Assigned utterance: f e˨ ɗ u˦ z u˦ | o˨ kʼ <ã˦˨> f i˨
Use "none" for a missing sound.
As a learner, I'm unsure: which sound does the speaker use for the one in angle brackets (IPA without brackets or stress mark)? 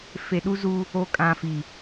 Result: ã˨